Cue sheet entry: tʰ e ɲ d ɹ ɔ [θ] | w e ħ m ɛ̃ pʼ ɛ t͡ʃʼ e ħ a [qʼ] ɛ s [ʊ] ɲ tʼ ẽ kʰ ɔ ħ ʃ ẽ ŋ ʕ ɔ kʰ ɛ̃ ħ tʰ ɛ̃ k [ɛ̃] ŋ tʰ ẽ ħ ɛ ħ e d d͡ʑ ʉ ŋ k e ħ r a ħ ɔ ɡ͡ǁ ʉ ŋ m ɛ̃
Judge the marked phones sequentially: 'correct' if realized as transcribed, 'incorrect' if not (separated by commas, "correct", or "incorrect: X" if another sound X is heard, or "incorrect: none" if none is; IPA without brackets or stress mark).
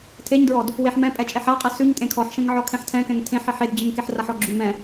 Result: incorrect: d, correct, incorrect: ʉ, correct